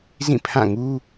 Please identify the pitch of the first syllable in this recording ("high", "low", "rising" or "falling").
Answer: falling